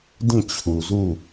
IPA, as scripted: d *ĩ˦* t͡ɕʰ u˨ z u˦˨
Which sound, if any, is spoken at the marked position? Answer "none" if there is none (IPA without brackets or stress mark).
ĩ˦˨